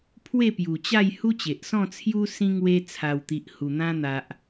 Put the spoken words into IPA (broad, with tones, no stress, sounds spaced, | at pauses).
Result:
pʰ w e˥˧ p j u˨˩ t͡ɕ a˥˧ j h u˦ t͡ɕ e˨ ʔ s ɔ̃˥˧ t͡sʰ j u˦ s ĩ˦ ŋ w e˧ t͡sʰ a˨˩ w t̪ i˨ ʔ h u˨˩ n̪ ã˧ n̪ a˨ ʔ